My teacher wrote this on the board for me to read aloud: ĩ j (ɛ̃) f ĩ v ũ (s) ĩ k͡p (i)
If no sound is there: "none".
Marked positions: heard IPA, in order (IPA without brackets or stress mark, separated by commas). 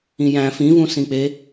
æ̃, s, e